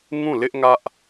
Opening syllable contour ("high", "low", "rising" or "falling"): falling